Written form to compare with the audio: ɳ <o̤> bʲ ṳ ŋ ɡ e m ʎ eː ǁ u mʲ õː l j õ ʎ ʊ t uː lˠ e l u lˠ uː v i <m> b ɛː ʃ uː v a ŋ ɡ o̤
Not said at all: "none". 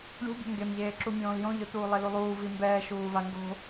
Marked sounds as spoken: ṳ, m

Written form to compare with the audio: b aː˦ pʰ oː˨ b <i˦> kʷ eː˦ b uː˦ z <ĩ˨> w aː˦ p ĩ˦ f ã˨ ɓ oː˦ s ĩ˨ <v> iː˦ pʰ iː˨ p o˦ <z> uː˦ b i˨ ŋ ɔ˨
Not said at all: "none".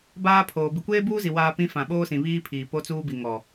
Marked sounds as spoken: i˨, i˨, β, t͡s

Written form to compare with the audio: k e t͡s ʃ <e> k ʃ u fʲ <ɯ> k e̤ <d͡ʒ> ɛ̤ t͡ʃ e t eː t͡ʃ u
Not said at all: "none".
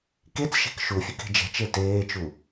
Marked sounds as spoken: e̤, ɯ, d͡ʒ

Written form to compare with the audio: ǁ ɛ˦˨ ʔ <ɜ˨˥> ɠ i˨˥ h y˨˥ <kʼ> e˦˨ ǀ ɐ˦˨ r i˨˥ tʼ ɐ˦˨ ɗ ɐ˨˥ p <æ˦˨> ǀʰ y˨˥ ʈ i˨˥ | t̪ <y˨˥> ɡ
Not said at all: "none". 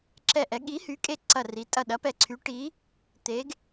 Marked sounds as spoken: ɛ˨˥, kʼ, ɛ˦˨, e˨˥

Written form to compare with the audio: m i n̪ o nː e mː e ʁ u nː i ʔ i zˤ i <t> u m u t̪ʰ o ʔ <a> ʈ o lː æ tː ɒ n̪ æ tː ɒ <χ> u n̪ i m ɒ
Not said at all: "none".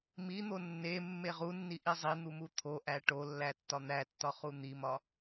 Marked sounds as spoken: n̪, æ, χ

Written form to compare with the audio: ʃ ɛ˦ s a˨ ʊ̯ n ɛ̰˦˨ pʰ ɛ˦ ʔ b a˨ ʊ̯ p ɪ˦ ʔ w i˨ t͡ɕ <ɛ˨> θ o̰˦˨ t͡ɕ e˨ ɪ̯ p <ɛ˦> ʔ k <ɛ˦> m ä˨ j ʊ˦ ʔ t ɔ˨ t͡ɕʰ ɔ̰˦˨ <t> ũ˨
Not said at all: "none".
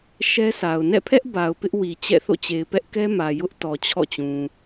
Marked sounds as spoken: ɛ̰˦˨, ɛ˦, ɛ˦, t͡ɕ

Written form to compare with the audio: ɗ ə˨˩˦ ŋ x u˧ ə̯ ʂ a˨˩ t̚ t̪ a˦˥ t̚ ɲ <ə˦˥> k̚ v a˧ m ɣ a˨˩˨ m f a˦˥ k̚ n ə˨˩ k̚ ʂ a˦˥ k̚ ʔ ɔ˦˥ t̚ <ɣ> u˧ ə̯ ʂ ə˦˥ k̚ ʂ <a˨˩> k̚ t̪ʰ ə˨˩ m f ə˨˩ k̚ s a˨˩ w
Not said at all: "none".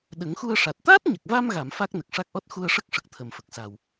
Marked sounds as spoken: ə˨˩, x, ə˨˩

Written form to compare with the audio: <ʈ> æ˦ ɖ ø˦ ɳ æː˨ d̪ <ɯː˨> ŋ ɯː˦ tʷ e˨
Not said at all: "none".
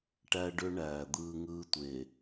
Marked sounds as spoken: ʈ, ɯː˦

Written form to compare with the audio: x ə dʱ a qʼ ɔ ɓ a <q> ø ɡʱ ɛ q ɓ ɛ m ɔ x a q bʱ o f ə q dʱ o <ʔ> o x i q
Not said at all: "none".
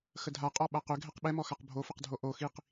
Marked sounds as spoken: q, ʔ

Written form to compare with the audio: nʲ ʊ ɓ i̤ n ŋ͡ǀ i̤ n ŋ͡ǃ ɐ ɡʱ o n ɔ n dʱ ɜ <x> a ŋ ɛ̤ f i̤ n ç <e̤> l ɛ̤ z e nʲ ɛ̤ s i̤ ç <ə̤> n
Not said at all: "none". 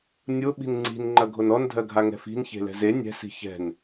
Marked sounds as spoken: ɡʱ, e̤, ɛ̤

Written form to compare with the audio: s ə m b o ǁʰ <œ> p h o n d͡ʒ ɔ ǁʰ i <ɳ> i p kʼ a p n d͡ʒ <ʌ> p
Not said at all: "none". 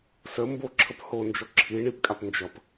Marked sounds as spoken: ə, ɳ, ʌ

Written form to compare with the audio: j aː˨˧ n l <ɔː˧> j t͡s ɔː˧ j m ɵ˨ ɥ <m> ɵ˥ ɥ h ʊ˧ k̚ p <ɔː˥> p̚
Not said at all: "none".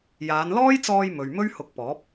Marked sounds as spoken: ɔː˥, m, ɔː˨˥

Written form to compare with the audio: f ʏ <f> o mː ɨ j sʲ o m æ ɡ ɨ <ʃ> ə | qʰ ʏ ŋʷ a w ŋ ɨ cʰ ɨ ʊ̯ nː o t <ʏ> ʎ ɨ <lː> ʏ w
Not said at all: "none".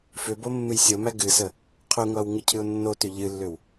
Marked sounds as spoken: b, s, ʏ, lː

